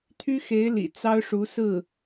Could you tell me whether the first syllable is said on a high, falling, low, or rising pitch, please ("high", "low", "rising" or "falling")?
high